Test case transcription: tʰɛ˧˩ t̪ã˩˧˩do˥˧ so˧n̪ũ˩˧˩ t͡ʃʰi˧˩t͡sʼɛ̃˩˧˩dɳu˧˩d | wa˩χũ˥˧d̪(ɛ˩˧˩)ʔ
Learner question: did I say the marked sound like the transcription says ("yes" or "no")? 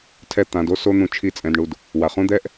no